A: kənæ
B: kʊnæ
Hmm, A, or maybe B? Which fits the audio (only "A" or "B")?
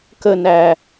A